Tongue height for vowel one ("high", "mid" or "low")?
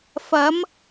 low